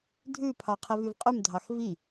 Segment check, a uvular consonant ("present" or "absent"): present